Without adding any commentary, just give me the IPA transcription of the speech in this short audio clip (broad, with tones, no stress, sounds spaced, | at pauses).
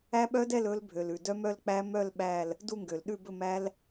æ˦˥ ɓ œ˦˥ d ɛ˥˧ l ɵ˦˥ l bʱ ø˩ l ʉ˩ d œ˦˥ m œ˥˧ l k͡p æ˦˥ m œ˥˧ l ɓ æ˥˧ l | d u˥˧ ŋ ɡ ø˩ l ɗ ʉ˥˧ b ɵ˥˧ m æ˦˥ l